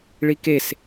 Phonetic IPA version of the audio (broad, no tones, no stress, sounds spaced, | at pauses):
ɭ i k e s